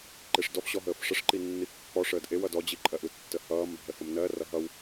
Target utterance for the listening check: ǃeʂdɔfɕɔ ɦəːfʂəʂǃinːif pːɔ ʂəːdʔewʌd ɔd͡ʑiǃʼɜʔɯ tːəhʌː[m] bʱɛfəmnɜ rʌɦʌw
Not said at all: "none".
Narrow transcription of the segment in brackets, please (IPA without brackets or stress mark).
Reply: m